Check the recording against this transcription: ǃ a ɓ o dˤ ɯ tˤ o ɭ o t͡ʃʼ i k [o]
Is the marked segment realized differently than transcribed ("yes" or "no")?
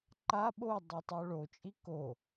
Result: no